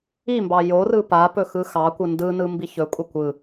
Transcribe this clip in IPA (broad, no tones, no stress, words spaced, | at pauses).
imbɑ jorɯ papɵ xɯxɑkʷɯ ndɯnɯ mbiçɵkʷʼə kʷɯ